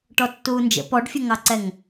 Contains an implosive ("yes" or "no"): no